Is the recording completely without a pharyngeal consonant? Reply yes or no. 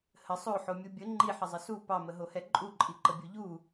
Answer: no